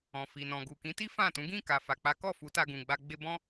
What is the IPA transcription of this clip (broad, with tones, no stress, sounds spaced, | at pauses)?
ɔ̃˨ f i˨ n ɔ̃˨ ɡ u˨ k ĩ˨˦ t i˦ f ã˦˨ t ũ˨˦ ɡ ĩ˦˨ k a˨ f a˨ k͡p a˨˦ k ɔ˦˨ f u˨˦ t a˧ ɡ ũ˨ ɡ͡b a˧ ɡ͡b e˧ b ɔ̃˦